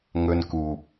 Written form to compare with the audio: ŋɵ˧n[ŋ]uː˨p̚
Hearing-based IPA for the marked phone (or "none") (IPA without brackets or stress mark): k